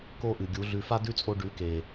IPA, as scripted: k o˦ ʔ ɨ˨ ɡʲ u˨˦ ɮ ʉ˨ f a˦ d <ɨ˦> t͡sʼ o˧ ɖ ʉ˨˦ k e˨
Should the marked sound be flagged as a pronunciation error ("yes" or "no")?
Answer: yes